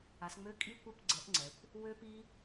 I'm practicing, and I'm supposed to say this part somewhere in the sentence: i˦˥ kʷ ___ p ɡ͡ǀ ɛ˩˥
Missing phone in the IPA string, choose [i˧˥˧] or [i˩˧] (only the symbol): i˧˥˧